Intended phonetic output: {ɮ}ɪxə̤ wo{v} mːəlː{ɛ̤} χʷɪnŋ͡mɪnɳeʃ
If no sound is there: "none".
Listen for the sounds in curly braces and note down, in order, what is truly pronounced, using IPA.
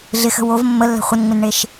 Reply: ɮ, v, ɛ̤

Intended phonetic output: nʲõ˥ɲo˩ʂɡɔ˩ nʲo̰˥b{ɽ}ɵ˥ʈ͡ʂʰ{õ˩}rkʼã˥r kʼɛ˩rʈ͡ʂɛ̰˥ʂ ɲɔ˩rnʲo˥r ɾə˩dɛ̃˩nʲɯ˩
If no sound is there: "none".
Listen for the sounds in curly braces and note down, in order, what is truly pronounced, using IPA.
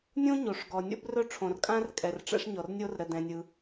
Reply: r, õ˩

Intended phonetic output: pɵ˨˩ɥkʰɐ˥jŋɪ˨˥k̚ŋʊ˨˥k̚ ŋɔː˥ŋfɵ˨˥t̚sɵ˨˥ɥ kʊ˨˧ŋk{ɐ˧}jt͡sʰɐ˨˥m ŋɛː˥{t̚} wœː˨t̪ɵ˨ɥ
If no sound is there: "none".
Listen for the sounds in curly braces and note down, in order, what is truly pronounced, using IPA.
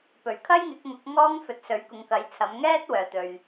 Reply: ɐ˨˥, t̚

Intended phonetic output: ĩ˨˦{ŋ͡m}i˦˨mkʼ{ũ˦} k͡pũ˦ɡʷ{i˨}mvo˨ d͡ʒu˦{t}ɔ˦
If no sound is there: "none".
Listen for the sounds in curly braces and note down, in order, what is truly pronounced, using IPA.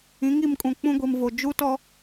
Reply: ŋ, ũ˨, i˨, t

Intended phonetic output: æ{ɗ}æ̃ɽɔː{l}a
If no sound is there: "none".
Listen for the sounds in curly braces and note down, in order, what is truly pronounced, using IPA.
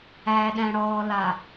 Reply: ɗ, l

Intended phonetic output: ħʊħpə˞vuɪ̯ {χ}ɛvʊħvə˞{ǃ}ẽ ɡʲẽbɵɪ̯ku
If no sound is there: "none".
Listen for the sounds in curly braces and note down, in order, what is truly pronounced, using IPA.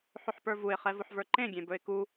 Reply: χ, ǃ

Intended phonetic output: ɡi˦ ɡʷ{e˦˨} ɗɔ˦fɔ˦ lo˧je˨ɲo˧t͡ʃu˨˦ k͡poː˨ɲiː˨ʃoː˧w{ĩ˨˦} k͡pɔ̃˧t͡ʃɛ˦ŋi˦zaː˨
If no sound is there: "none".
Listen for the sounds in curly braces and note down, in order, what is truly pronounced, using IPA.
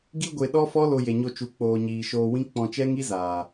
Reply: e˧, ĩ˦

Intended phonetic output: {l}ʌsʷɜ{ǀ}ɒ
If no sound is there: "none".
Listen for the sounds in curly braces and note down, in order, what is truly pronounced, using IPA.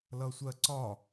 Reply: l, ǀ

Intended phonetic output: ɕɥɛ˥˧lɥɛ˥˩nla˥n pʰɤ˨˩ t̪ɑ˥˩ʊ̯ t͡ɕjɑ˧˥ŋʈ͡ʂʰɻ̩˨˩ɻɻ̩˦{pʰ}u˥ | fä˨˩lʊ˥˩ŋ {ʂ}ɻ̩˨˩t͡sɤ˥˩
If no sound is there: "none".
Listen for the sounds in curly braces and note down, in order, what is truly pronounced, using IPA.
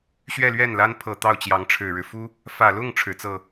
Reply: f, ʈ͡ʂʰ

